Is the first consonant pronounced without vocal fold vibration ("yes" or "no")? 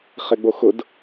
yes